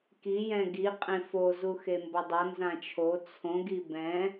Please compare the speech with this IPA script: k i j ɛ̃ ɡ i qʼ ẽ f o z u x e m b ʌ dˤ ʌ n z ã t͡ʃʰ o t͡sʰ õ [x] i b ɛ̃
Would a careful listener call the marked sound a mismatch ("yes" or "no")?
yes